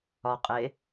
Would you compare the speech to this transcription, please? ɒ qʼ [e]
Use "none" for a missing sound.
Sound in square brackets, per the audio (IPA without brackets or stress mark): e